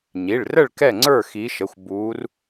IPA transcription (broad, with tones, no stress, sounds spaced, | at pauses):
ɲ i˩˧˩ ɭ r ə˥˨ ɭ k ɛ˥˨ ŋ͡ǀ ə˞˥˨ x i˨˦ ʃ ə˩˧˩ xʷ b uː˨˦ r